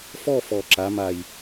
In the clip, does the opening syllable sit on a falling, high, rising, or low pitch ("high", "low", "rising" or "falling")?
falling